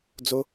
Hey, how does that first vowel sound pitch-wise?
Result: high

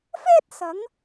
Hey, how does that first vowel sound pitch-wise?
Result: high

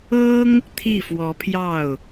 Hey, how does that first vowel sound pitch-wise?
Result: high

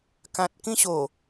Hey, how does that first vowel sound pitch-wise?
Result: low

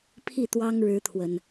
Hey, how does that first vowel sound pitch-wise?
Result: falling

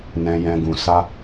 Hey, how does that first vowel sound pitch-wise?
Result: high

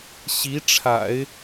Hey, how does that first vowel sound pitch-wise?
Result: rising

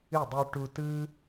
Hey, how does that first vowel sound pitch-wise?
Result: falling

